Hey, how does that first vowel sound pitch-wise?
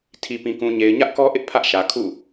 low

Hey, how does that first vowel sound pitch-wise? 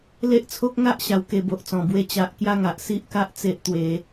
high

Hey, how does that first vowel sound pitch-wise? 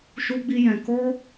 high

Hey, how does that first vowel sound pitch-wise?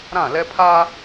falling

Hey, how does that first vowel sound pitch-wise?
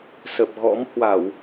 low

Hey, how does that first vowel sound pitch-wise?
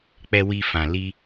low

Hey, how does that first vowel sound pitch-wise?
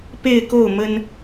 falling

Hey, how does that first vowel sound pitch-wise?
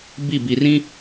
falling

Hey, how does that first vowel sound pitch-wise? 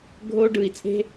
high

